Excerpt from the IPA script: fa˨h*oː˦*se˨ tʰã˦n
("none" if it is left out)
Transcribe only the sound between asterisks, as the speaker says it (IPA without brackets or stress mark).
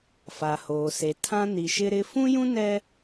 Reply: oː˨